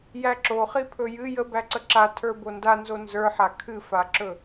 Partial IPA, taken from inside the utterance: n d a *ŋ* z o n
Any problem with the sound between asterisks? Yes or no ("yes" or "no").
yes